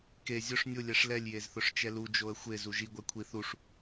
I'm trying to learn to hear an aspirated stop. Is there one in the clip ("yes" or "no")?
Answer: yes